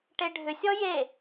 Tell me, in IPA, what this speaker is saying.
ʈ e ɖʱ ʏ sʲ ɔ j e

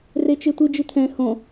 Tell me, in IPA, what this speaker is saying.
r e t͡ʃ e tʷ i d͡ʒ ɨ t̪ʰ ɛ̃ h õ

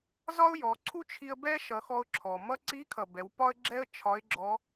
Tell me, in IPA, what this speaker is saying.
z ɒ˥ ʊ̯ j ɔ˩˧ ǀʰ u˥ t͡ʃʰ i˧ ə̯ b ɛ˥ ʃ ʌ˩˧ x ɔ˧ ʊ̯ ǁʰ ɔ˩ m ʌ˥ ǀ i˧˥ kʰ ʌ˩ b ɛ˩˧ w p ɒ˥ ə̯ ɡ͡ǁ ɛ˥ ə̯ t͡ʃʰ ɒ˧˥ ɪ̯ ɡ͡ǁ ɔ˧˥

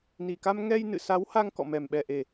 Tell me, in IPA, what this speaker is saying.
n i˨˩ k a˧ m ŋ ɛ˧ j n ɨ̰˧˨ s a˨˦ w h a˧ ŋ k ɔ̰˧˨ m ɛ˨˩ m ɓ ɛ˨˩ ʔ e˨˩

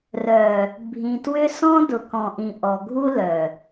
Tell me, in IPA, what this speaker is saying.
r œ˨ | bʱ ĩ˨ t w ʏ˦ s ɔ̃˦ d ʊ˨ k ɔ̃˨ ʔ ĩ˨ ʔ ɔ˨ ɡʱ u˦ l œ˨

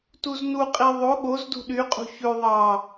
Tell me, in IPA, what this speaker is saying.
t u z n u qʼ i ðˤ o ɠ o z d ṳ ɗ y qʼ ṳ ç ʉ ðˤ ɑ

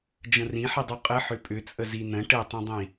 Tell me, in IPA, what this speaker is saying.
d͡ʒ ə̃ r ĩ ħ i dˤ u qʼ ə ħ ʏ pʼ ʏ t͡sʼ ə z i n ə̃ ʈ ɘ tˤ ə̃ dˤ ĩ

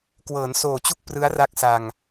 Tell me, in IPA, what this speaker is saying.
k w ɤː˩˦ n s oː˨˩ t͡ɕ u˥˩ k̚ p r ɯ˦˥ a̯ r a˦˥ k̚ s a˧ ŋ

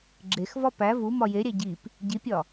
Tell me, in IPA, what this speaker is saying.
ɡ͡ǁ e x v ɒ p æ v u m ɒ j e ɾʲ æ ɟ i p | ɟ i pʲ ɒ

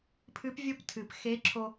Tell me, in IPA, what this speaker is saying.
pʰ ɨ˧˥ p vʲ o˥ p tʰ ɨ˩ p x e˧˥ ǁʰ o˧

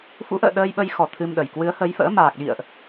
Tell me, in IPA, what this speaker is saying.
f ṵ˧˥ ʔ ə̰ː˧˨ ɗ əː˧ j ɓ ə˧ j x ɔ˧˩ t̪ʰ ɨ˧ m ɗ ə˨˩ j k w ɨ˨˦ ə̯ h ə˨˦ j f ə̰ː˧˥ m aː˨˩ k̚ ɗ ḭ˧˨ ə̯ ʔ

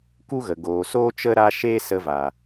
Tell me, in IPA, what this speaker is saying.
k u˦ ɣ ə˨ ɡ oː˨ s oː˦ t͡ʃ ə˦ ɾ a˦ ʃ eː˦ s ə˧ v a˨

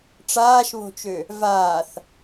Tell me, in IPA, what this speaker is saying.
ʈ͡ʂ aː ʃ β o̤ t͡ʃ ø | v aː θ

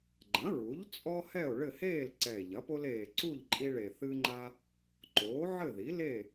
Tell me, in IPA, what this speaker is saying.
ɡ͡ǃ ɐ̃˩˥ ɹ u˩˥ ʎ t͡sʼ ɔ˦ h ɛ˥˨ o̯ ɭ ɘ˥˨ h eː˥˨ l ǀ ɛ˨˩ e̯ ʎ ɐ˩˥ p o˦ l eː˨˩ ǀ u˥˨ ʎ ǃʼ i˦ ɭ e˨˩ θ ɨ˦ ŋ͡ǃ a˦ | ǃ oː˩˥ ʕ ɘ˥˨ ð i˩˥ l e˥˨

